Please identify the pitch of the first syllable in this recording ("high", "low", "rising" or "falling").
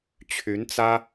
rising